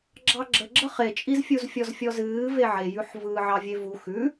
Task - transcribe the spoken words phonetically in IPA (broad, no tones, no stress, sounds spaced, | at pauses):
ɡ͡ǁ ɑ ɡ͡ǁ ə ɡ͡ǁ ə χ e t͡ʃʼ i z fʲ u z fʲ ɔ z fʲ ɔ z ɨː v e ʕ e j ʉ ħ v ɯː ʕ ɑ vʲ e v u x ʉ